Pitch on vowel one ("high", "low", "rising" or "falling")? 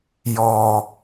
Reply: high